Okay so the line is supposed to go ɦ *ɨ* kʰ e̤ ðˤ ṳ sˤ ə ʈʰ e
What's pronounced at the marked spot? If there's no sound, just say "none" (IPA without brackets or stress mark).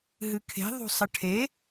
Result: ɨ